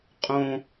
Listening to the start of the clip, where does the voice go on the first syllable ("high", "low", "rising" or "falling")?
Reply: high